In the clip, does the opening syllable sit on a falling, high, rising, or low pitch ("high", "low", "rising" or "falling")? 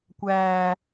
high